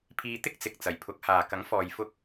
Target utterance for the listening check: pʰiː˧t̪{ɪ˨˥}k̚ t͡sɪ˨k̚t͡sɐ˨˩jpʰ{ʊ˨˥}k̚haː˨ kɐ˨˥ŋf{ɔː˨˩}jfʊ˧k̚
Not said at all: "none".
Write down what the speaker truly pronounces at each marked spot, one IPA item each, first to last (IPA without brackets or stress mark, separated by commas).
ɪ˥, ʊ˨˥, ɔː˨